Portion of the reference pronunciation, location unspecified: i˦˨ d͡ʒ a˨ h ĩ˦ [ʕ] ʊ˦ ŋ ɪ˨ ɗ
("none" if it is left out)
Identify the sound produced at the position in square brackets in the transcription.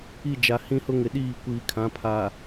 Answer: h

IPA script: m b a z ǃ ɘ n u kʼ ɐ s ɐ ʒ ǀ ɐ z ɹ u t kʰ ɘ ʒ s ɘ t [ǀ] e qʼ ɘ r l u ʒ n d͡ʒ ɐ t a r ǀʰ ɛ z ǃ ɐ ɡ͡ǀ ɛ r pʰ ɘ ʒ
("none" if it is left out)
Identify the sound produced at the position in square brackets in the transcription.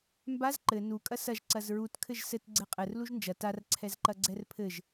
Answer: ɡ͡ǀ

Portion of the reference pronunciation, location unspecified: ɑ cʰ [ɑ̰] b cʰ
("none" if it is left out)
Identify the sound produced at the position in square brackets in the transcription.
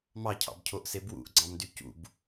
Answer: ɑ̰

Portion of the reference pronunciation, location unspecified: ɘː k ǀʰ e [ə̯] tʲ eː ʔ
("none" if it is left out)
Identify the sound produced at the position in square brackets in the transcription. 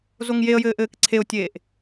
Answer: ʊ̯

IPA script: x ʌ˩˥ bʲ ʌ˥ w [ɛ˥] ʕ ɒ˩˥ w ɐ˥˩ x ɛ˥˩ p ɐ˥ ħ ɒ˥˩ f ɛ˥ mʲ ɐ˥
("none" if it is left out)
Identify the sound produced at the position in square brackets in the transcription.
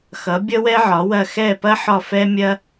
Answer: ɛ˥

